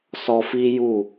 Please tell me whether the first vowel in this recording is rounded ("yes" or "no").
yes